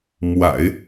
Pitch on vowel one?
low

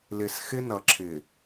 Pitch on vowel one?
low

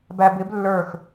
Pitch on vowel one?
low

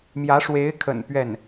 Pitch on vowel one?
rising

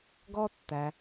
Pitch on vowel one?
high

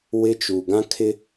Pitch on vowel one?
high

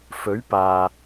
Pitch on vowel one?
rising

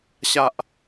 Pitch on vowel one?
low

